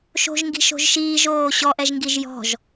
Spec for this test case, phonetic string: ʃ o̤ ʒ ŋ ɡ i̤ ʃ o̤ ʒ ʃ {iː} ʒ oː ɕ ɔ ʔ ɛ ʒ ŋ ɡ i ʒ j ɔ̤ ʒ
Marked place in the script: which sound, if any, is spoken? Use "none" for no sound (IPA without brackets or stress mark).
iː